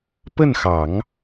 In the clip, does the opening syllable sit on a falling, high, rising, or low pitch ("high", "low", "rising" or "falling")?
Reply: falling